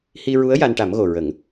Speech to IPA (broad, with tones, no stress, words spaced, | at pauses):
hi˧ɹu˧˥ə̯ ja˧nʈa˨˩˦mɣo˨˩ ɹə˨˩˦ŋ